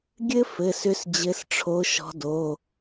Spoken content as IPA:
ɡʲɘ˥fɘ˩˧˩sʏ˨˦s d͡ʑɘ˨˦sʈ͡ʂʰo˨˦ ʃɔ̤˨˦do˩˧˩

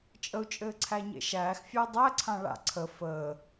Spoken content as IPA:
t͡ʃʼəu̯t͡ʃʼɘː ǀʰæɲḛʃæːxfʲæ dˤæǀʰã ɭa̰ ǀʰə fəː

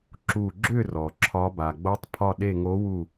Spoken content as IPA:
ǁu˧˩ɡ͡ǁʏ˥˨rɔ˩ ǁʰɒ˨˦ba˩ ɡ͡bo˨˦tˤpʰɒ˧˩ ɗe˧˩ŋo˨˦wu˧˩

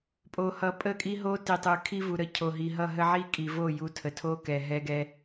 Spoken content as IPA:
pʼo˨hʌ˨ pʼə˦˨kʼi˦ɦo˦ ti˨tˤɯ˨ kʰi˦vu˨ɾə˦ cʰo˨ɦi˨ɦʌ˦˨ ɦə˦ʕi˦kʼi˨vo˦˨ ju˦ tʰə˨tʰo˦kɛ˨ ɦɛ˦ɡɛ˦

